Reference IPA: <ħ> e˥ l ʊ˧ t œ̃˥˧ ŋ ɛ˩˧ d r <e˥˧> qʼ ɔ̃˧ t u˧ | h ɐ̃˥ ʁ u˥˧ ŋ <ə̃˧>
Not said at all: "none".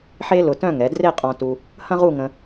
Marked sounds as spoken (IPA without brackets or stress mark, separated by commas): ħ, e˥˧, ə̃˧